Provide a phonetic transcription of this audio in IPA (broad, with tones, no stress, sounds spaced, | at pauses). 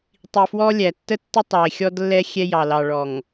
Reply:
tˤ i˨ f w ɔ˦ lʲ æ˨ tː ə˦ tː ɪ˦ tˤ ɑ˨ ɪ̯ xʲ ɔ˦ d lː ɛ˦ xʲ ɛ˦ j ɑ˨ l ɑ˨ ɭ ɔ˨ ŋ